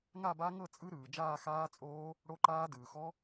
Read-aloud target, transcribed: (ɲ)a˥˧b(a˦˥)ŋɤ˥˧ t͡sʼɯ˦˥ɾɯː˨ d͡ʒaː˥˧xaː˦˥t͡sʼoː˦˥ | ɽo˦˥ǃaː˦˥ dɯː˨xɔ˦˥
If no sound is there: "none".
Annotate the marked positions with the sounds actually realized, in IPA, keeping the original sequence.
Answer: ŋ, a˦˥

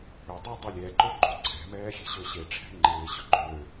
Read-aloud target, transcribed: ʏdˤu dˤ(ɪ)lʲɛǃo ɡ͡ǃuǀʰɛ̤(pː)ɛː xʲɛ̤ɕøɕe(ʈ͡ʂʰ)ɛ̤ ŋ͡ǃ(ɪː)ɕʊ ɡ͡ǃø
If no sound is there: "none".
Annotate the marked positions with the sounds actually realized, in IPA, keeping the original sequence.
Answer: ɪ, m, ʈ͡ʂʰ, ɪː

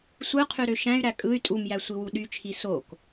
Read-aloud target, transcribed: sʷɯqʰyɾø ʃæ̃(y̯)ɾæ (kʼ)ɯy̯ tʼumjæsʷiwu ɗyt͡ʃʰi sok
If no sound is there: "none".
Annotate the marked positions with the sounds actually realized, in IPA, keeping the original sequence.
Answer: y̯, kʼ

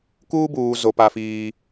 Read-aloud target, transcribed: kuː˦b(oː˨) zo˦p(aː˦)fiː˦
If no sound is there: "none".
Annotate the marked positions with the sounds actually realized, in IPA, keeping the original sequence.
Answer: uː˨, a˦

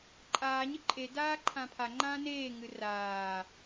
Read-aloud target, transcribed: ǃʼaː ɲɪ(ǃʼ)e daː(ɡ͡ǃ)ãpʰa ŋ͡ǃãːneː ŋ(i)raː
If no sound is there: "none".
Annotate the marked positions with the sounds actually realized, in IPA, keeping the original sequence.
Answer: ǃʼ, ǃʰ, ɨ

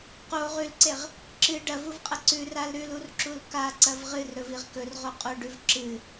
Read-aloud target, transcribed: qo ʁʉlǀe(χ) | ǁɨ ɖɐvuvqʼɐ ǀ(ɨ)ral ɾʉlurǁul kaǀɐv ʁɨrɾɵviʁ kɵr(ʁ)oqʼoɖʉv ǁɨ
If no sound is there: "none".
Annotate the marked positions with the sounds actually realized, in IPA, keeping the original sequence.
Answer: ʁ, ʉ, ʁ

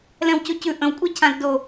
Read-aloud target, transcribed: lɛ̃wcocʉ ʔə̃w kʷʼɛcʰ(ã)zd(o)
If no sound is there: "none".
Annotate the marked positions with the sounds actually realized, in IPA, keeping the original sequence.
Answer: ã, o

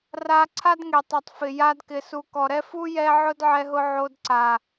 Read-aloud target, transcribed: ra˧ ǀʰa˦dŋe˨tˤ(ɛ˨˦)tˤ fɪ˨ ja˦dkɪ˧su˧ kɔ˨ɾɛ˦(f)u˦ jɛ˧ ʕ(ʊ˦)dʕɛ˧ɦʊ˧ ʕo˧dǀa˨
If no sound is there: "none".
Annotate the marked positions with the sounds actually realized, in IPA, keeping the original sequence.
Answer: ɛ˨, f, ʊ˦

